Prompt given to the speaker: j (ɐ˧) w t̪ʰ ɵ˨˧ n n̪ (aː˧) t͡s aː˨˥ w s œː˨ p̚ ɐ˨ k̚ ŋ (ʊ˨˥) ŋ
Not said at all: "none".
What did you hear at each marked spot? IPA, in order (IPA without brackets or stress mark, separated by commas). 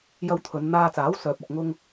ɐ˧, aː˧, ʊ˧